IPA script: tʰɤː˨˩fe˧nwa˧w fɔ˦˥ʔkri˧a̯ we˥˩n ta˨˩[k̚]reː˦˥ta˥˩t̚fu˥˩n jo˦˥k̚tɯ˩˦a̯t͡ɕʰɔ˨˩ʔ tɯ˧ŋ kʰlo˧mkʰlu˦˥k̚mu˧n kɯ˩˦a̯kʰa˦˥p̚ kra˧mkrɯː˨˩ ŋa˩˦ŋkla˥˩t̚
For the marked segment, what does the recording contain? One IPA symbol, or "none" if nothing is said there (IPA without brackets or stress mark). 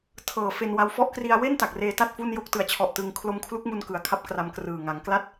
k̚